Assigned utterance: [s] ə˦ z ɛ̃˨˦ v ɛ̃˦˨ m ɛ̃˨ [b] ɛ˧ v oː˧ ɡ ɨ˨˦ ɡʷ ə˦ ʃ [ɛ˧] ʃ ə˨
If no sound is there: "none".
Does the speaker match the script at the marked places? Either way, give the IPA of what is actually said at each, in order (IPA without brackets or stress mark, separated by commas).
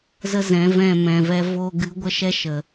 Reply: z, v, ɛ˦